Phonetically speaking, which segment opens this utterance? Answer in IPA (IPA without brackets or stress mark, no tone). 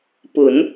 p